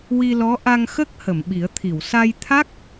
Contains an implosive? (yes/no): yes